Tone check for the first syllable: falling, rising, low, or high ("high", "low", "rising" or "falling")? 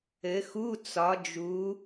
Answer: rising